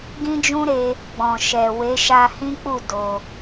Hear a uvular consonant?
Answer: no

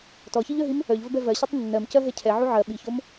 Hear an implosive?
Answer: yes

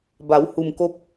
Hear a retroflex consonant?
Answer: no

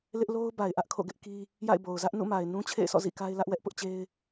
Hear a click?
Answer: no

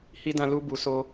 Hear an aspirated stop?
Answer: no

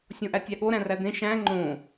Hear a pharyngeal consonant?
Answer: no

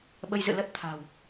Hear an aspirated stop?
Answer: yes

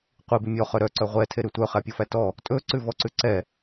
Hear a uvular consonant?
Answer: yes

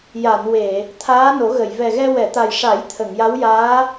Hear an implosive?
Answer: no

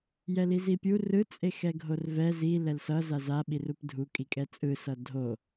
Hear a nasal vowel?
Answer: no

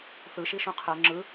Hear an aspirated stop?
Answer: yes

